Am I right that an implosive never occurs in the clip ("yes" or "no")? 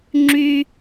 yes